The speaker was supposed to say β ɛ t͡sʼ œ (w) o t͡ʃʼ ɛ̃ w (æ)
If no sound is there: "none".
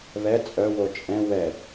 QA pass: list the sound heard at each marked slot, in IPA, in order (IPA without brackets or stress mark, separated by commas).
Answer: w, ɛ